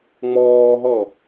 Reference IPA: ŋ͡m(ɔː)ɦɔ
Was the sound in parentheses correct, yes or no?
yes